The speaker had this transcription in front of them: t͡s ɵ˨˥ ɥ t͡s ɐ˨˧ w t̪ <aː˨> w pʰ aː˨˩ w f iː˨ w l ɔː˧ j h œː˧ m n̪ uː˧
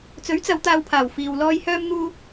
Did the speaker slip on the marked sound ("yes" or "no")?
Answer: no